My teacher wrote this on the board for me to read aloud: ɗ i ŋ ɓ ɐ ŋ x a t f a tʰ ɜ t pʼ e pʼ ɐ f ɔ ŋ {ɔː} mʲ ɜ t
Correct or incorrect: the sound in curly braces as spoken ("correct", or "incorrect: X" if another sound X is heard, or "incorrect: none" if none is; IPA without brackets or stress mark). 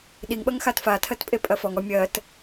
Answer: incorrect: ɔ